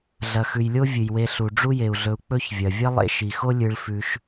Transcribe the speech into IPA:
ɮ ɐ˨ x ʉ˨ j lʲ o˥ vʲ ɨ˩ j w e˨ ɬ u˨ ɖ͡ʐ u˥ j e˩ u̯ ɮ ɵ˨ u̯ k͡p ɵ˦ ç vʲ ɐ˩ vʲ ɐ˥ lˠ ḛ˦ ʃ i˩ x o˥ lʲ ɨ˨ ɭ f ʉ˨ ʃ

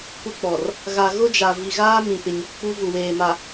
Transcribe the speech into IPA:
kʷ ɪ˦ k͡p ɔ˨ r | ɣ a˨ ɣ ʊ˦ d͡ʒ a˨ v i˨ ɣ aː˦ m ĩ˨ p ɪ˨ ɲ ɔ˨ k͡p u˦ v u˨ w eː˨ m a˨

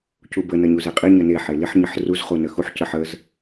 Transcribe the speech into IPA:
c u b ə n ɐ ɲ u z e qʼ i ɲ ə n e ħ e l i ħ ɲ ə ħ r u z χ u n ə x u ħ c ə ħ ə z

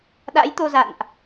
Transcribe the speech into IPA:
ɗ a̰˧˥ j t̪ o˧ z a̰˧˨ n ʔ

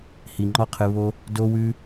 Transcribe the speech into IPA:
h i˨ ŋ͡ǃ ɔ˦ qʰ ɨ˧ β o˧ | d o˧ w ʉ˧

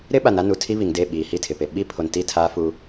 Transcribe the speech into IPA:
ɾ ɪ˦ ɓ a˨ n a˦ n u˨ tʰ i˦ β i˨ ŋ d e˦˨ ɓ iː˨ h i˦˨ tʰ ɪ˨ p e˨ ɓ i˦ pʰ o˨ n t i˦˨ tʰ aː˦ f u˦

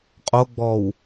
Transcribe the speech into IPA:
qʼ o ɡ͡b ɔ w

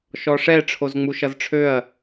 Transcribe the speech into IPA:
ʃ ɔ ʂ ɛ ʈ͡ʂʰ o z ŋ͡m u ʃ ʌ z ʈ͡ʂʰ ø ɐ̯

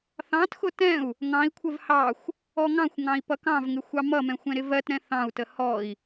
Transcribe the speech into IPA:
θ ɑ̃ t x ʊ t ɛ̃ u̯ | ŋ ɑ̃ i̯ kʷʰ ə v h ɑ xʷ | ɔ ŋ ɑ̃ xʷ ŋ ɑ̃ i̯ p ʌ k ɑ̃ v ŋ ɪ xʷ ɑ m ʌ m ɛ̃ xʷ ɛ̃ ɾ ɪ v ɜ t ɾ ɛ̃ θ ɑ̃ u̯ t ə h ɔ i̯

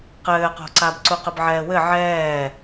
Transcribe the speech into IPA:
q ɘː q o̤ ǀ a b ǀ u q ɘ b ʕ ɛː w ɘ ʕ ɛː

